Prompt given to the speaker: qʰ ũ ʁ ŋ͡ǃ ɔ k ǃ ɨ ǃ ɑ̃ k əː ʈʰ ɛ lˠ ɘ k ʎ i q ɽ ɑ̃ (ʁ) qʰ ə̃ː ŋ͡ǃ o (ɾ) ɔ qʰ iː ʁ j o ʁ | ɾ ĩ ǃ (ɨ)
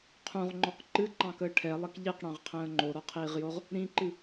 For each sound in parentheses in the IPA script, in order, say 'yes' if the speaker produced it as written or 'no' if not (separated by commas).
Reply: yes, yes, yes